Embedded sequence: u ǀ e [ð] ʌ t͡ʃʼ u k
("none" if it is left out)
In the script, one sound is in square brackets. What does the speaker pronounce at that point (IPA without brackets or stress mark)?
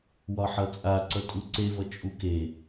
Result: v